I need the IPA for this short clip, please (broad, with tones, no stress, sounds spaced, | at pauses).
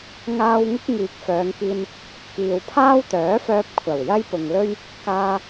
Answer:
ŋ aː˧ w ŋ ɪ˥ k̚ ŋ iː˨ k̚ f œː˨˧ ŋ k iː˧ n | k iː˨ w pʰ aː˥ w t̪ œː˨˥ f œː˧ p̚ kʷʰ ɐ˨˩ w j ɐ˥ j p ʊ˨ ŋ l ɵ˥ ɥ | k aː˧